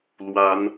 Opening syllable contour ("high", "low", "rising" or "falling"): rising